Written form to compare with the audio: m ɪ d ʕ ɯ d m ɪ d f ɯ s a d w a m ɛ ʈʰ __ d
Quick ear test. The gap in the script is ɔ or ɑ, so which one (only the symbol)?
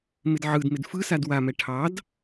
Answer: ɑ